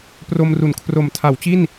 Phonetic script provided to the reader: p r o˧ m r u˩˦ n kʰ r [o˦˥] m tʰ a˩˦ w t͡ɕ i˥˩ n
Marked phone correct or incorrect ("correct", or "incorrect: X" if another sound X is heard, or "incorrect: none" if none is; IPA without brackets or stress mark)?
incorrect: o˨˩